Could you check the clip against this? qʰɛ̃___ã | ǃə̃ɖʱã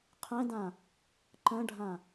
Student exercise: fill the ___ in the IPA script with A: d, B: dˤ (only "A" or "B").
A